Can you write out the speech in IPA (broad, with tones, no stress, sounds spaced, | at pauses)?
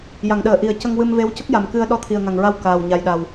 j a˨˩˨ ŋ ɗ əː˨˩˨ ʔ i˨˩˦ ə̯ c ə˧ ŋ w ɨ˧ m v e˧˥ w c ə˦˥ k̚ j a˨˩ m k ɨ˧ ə̯ ɗ ɔ˧ t̪ʰ i˨˩ ə̯ ŋ a˨˩ ŋ ɹ a˧ w k aː˨˩ w ɲ a˨˩ j ɗ a˨˩ w